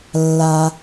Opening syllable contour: low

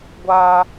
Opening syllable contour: high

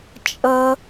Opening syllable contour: high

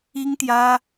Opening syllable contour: high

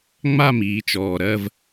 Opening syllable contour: falling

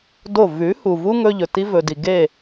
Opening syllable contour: falling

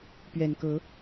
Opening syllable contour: low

